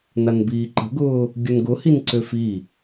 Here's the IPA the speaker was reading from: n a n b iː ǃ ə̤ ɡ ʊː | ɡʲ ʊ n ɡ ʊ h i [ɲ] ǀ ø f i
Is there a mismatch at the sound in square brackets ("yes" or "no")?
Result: yes